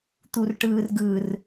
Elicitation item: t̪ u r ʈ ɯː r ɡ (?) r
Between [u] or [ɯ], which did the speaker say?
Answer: ɯ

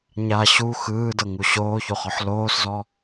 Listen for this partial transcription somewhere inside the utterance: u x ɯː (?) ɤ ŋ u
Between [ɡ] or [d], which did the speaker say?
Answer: d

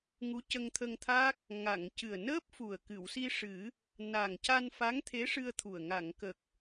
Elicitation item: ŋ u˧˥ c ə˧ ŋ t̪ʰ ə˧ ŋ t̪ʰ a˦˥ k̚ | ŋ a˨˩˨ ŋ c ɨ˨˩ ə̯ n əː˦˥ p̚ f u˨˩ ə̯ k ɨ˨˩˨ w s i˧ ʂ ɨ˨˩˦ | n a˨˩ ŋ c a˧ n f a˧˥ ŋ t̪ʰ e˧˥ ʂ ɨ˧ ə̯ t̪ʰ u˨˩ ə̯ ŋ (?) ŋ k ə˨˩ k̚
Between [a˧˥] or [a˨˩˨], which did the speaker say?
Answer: a˨˩˨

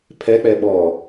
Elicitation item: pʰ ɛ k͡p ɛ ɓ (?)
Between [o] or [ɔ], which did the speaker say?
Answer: ɔ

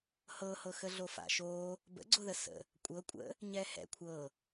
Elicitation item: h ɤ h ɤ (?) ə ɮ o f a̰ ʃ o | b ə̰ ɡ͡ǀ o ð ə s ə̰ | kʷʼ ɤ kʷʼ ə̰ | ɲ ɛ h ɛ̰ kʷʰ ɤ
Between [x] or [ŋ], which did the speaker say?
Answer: x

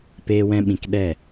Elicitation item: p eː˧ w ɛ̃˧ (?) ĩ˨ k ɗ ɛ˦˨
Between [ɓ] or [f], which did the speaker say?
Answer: ɓ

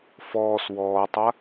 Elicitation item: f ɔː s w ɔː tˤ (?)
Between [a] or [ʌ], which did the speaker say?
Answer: a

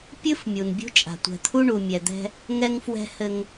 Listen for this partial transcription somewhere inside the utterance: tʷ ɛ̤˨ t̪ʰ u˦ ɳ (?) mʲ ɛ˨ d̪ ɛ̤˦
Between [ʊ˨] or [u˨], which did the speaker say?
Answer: u˨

